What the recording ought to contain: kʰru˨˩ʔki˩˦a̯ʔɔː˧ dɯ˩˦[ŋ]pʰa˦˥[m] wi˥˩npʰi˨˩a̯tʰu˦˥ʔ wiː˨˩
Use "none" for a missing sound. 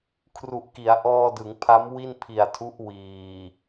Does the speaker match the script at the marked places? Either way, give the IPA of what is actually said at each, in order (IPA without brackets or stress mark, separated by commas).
ŋ, m